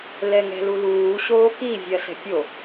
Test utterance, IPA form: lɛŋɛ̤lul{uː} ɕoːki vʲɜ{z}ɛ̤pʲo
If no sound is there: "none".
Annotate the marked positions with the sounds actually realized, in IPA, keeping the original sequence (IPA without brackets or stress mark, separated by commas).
uː, s